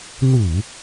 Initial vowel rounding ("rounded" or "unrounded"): rounded